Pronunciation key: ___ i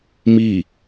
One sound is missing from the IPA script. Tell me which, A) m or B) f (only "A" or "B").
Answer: A